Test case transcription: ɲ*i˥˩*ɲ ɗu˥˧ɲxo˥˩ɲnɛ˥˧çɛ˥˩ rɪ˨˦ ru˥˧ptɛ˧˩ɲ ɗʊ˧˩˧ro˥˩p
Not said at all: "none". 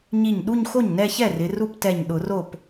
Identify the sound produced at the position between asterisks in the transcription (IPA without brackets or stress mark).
i˥˩